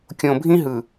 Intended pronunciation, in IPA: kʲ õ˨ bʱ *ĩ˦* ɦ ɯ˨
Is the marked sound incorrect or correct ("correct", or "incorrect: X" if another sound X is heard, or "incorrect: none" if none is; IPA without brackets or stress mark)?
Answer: correct